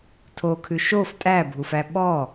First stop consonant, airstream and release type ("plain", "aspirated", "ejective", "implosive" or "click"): aspirated